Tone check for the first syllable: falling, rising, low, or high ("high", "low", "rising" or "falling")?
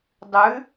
rising